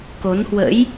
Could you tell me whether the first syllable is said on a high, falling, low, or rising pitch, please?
rising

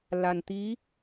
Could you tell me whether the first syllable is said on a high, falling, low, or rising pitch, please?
low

